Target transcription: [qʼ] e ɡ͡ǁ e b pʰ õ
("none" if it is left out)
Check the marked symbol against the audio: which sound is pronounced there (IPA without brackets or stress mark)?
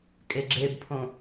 kʼ